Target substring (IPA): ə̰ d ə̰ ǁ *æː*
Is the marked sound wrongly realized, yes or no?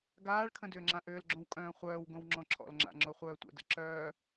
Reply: yes